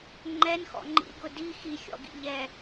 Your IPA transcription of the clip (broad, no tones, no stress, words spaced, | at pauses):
ŋ͡ǃɛnxɔ̰ ŋ͡ǃḭɡʊ di xixʲɔ̰ɡḭ ʎɛ